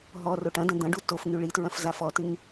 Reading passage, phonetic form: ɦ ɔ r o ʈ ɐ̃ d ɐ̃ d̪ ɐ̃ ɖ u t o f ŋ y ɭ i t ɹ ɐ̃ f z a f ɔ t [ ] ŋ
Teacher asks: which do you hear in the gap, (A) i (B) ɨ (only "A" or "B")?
B